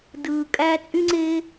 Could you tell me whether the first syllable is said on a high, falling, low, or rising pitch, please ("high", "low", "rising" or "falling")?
low